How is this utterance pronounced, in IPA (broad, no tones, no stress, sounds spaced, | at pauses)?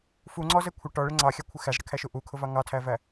f u ŋ͡ǀ ɔ z ɛ kʷʰ ɪ ʈ ɔ ɭ ɪ ŋ͡ǀ ɑ xʲ ɑ kʷʰ ɪ x æ z ɽ ɪ kʰ æ ʃ u ʔ u kʰ ʊ v ɑ ŋ ɑ tʰ æ v æ